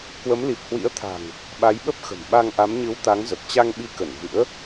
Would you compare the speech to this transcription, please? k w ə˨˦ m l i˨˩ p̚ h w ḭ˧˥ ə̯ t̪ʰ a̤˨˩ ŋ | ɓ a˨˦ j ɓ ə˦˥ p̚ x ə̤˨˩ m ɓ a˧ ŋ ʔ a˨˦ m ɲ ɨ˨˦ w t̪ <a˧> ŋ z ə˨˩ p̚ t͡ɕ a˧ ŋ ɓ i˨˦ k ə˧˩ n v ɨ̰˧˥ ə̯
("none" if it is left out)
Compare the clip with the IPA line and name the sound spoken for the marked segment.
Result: a˨˦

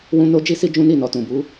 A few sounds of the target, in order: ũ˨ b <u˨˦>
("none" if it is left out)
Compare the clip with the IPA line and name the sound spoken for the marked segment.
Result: u˨˦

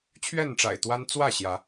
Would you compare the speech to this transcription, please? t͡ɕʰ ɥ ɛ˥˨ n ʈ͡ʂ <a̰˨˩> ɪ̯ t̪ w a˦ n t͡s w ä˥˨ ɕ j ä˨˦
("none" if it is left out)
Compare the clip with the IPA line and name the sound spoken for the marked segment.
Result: a̰˨˩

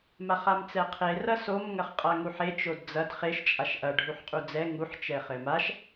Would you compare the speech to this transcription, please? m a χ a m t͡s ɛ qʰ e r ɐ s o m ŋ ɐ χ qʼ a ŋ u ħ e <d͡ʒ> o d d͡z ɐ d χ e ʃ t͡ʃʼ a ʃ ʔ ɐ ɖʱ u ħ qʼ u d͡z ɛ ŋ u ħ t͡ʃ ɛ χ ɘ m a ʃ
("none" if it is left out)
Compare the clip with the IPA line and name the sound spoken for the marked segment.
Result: t͡ʃ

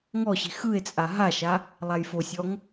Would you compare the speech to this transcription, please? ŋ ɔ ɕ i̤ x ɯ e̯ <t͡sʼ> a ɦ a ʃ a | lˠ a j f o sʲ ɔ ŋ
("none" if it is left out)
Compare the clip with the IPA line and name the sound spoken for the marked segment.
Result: t͡sʼ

